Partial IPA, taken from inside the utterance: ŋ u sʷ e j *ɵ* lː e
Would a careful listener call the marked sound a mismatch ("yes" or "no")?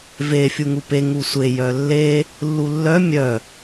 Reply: yes